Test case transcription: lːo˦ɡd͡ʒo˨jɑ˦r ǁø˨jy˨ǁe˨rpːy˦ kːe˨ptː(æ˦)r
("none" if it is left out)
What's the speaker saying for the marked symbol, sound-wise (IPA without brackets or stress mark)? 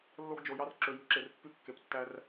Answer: æ˦